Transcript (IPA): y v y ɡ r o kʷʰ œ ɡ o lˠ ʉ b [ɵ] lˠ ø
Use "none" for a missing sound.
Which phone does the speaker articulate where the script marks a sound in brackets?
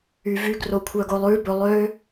ɵ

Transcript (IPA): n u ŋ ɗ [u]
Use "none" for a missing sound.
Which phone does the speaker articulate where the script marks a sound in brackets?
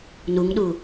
u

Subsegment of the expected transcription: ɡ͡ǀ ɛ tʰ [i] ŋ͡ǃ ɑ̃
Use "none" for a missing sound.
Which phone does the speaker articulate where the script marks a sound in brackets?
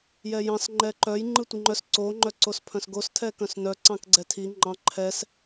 i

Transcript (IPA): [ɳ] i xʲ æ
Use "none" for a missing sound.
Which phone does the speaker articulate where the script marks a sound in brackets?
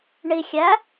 ɳ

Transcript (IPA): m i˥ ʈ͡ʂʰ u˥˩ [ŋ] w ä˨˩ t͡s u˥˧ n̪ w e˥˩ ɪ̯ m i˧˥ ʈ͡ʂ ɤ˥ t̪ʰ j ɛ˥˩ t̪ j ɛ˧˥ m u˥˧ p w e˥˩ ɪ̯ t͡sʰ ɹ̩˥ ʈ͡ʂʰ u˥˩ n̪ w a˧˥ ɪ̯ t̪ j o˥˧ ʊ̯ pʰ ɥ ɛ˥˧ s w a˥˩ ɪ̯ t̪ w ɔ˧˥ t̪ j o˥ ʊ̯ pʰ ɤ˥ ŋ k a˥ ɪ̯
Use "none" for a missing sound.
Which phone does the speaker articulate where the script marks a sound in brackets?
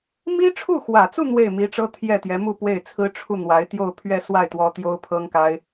x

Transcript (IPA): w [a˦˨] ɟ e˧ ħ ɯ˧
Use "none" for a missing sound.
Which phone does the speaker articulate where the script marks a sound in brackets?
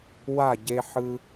a˦˨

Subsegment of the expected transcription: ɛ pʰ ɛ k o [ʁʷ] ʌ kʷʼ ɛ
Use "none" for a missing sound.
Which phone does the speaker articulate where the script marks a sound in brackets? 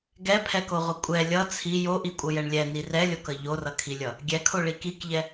ʁʷ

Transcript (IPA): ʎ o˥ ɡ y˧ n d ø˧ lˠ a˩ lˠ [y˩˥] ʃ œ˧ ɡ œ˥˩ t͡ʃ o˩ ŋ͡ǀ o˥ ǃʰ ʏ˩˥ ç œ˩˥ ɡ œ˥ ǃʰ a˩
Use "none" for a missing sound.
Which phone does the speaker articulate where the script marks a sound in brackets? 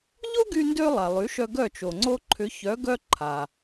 y˩˥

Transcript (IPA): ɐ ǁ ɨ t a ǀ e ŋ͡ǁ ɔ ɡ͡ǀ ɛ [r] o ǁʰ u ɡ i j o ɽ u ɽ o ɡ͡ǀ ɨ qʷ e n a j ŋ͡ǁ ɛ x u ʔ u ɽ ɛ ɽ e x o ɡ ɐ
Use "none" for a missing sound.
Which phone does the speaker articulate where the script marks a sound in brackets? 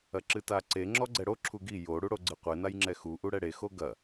ɽ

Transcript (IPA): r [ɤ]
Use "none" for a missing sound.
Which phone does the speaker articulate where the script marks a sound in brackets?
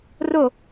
o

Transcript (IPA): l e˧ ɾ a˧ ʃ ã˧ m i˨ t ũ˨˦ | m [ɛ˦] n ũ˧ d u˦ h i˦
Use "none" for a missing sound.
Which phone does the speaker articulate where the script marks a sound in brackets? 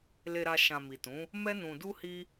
ɛ˦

